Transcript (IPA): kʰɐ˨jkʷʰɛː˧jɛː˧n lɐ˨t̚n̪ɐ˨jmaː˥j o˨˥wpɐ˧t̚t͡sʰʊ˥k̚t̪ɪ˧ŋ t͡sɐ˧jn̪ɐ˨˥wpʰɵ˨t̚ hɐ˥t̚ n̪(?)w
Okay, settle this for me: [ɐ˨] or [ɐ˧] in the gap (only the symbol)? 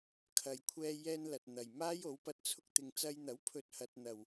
ɐ˨